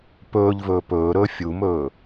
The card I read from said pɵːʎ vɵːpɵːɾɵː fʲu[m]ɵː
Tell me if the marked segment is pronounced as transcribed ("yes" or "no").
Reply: yes